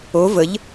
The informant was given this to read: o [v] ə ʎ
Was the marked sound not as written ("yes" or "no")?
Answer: no